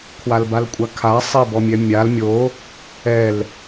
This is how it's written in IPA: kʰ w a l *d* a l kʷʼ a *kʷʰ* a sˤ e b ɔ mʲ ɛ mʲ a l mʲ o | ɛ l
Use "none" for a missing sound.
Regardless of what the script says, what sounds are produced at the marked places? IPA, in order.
b, kʰ

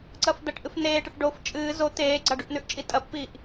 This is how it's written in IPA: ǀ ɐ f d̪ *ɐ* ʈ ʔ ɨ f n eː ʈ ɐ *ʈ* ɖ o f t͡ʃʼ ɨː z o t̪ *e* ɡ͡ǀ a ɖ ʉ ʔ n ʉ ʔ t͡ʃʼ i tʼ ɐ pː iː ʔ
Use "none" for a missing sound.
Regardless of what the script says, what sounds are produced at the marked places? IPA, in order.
ɐ, ʈ, eː

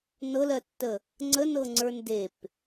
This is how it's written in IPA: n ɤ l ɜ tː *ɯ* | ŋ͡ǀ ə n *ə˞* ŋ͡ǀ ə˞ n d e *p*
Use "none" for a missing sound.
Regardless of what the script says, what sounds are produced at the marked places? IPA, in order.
ə, ɤ, p

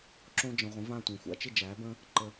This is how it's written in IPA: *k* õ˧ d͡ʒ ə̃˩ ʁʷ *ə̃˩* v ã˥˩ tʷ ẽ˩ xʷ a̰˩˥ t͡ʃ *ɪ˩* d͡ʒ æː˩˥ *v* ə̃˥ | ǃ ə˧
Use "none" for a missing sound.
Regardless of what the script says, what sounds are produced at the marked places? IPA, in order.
ǁ, ə̃˩˥, ɪ˥˩, b

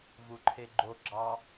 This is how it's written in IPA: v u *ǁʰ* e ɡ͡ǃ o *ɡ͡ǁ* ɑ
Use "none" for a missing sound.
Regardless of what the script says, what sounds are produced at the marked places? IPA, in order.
ǃʰ, ɡ͡ǁ

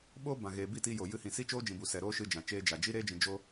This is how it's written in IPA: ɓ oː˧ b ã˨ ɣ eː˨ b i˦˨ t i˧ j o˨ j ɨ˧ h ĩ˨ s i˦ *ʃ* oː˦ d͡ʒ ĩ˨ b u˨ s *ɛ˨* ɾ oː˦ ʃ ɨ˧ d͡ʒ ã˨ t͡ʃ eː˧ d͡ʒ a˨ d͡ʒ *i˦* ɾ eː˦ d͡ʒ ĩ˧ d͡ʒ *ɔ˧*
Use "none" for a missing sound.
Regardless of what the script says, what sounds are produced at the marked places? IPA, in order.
t͡ʃ, ɛ˨, i˦, o˧

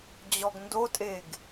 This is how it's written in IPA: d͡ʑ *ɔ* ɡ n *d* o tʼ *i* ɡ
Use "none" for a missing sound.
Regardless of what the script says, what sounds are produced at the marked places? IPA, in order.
ɔ, d, e

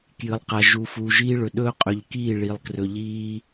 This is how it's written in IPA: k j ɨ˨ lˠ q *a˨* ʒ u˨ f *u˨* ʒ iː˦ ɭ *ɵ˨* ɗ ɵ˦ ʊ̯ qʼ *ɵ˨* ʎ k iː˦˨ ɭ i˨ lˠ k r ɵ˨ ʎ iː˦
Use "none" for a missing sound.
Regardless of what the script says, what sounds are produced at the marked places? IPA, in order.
a˨, u˨, ɵ˨, ɵ˨

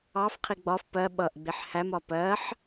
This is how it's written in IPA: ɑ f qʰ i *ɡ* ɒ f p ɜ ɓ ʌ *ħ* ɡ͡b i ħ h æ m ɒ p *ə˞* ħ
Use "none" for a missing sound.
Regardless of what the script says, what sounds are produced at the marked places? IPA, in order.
ɡ͡b, ʔ, ɜ

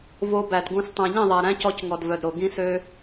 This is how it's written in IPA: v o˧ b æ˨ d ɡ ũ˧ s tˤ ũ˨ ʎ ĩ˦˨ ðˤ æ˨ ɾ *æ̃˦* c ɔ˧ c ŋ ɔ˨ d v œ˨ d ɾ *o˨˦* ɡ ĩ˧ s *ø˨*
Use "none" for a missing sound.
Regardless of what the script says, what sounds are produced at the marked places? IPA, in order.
æ̃˦, o˨, ø˧

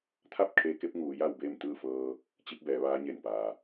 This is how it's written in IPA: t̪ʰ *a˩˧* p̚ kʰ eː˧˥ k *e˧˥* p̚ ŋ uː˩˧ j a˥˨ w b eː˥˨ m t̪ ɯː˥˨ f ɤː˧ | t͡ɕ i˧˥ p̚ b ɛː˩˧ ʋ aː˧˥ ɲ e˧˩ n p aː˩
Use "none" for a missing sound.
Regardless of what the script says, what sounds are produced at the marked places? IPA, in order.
a˥˨, e˧˥

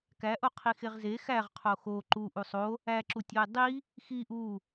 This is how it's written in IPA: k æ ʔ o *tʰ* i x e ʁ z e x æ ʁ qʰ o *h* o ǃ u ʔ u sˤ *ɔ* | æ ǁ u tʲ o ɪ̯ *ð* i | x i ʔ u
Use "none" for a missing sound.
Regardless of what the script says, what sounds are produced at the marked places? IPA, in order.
qʰ, x, o, dˤ

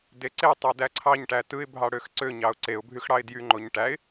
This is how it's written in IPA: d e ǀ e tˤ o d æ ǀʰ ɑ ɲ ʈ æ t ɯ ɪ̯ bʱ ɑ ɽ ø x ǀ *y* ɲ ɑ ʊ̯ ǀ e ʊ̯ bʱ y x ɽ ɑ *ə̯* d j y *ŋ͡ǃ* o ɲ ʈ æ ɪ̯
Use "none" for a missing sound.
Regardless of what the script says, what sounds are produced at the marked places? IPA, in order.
ø, ɪ̯, ŋ͡ǃ

